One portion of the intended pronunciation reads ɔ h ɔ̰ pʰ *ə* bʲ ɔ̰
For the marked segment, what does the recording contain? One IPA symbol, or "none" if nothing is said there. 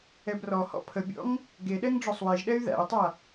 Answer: ə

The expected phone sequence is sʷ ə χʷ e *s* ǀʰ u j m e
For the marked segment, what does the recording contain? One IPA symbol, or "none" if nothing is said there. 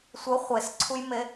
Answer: s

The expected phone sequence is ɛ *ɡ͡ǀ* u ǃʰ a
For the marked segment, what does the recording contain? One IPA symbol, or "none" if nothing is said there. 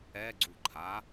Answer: ɡ͡ǀ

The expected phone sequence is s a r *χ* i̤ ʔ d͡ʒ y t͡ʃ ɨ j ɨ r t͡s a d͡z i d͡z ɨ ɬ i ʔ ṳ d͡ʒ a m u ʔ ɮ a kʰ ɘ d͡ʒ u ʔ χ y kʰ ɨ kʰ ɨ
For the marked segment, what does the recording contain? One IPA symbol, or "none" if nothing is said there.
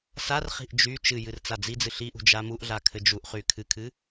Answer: χ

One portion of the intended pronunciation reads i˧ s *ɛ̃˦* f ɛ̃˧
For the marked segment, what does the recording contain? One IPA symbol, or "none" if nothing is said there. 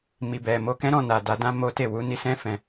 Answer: ɛ̃˦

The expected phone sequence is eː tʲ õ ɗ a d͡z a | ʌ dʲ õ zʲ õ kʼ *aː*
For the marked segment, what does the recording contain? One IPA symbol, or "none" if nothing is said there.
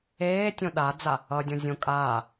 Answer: aː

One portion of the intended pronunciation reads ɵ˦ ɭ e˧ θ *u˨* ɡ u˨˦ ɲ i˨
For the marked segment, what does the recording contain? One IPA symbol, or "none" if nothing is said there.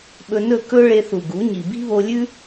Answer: u˨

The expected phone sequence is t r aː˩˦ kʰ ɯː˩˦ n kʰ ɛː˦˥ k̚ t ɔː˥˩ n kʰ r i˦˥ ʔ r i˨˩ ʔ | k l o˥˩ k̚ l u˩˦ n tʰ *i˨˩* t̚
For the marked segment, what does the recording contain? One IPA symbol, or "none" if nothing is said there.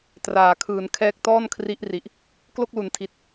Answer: i˨˩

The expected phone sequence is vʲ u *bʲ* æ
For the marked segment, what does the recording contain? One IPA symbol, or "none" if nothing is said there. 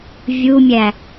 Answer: mʲ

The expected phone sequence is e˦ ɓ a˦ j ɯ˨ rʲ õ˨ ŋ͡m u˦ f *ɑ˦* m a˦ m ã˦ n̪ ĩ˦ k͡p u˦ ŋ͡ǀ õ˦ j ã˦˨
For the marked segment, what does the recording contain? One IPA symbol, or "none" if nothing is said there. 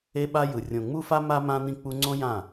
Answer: a˦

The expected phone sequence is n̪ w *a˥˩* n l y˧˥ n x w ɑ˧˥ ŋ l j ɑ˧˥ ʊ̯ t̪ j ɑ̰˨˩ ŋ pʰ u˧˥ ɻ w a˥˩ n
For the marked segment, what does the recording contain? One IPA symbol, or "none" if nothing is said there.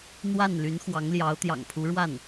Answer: a˥˩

